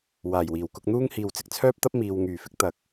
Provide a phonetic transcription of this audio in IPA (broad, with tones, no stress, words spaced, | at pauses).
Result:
waː˨˩jwiː˨˩wkʊ˧k̚n̪uː˥ŋ hiː˨wt͡sɪ˨k̚t͡sʰœː˥p̚t̪ɐ˥p̚ miː˨w ŋyː˨˩fɪ˨˥k̚ t̪ɐ˨k̚